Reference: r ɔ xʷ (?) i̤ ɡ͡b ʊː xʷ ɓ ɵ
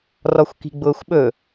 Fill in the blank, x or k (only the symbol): k